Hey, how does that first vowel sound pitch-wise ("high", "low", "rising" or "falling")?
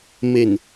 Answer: low